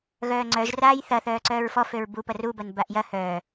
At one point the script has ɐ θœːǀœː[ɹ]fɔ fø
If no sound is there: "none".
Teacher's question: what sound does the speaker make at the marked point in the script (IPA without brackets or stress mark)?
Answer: ɹ